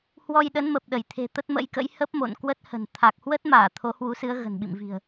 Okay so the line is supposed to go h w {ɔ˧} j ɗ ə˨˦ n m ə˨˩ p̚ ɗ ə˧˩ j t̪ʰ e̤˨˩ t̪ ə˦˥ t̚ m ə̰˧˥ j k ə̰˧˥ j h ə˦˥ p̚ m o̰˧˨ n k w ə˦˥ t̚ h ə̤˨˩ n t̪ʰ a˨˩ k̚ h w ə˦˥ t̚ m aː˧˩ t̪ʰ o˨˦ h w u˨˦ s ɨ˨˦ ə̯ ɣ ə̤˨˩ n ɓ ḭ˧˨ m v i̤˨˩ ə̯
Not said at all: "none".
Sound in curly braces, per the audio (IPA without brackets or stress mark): ɔ˧